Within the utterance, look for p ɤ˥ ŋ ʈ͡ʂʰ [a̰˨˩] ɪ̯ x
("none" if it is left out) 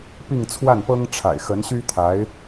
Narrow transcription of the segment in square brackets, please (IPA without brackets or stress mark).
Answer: a̰˨˩